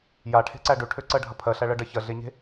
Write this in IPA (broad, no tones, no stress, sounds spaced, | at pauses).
j a ʈʰ e̤ ǀ æ ɖ ø ʈʰ ø ǀ ɜ ɖʱ ɐ pʰ ɜ ɬ æ ɭ ɜ ɖ ɜ ç ɜ ɮ e ɲ e̤